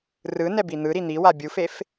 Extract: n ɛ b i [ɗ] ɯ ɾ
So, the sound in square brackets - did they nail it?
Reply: no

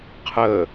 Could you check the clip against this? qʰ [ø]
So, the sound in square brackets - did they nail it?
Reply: no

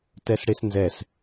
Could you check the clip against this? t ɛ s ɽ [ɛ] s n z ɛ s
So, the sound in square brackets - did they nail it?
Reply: no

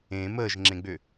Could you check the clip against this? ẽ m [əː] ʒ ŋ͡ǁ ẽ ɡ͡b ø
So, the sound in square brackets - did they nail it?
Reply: yes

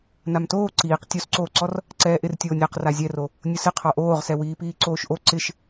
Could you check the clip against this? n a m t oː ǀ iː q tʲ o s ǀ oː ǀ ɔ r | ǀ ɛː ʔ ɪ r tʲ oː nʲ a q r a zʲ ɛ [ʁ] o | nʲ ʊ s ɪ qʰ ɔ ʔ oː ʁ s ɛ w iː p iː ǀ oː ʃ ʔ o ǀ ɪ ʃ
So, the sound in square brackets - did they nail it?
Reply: no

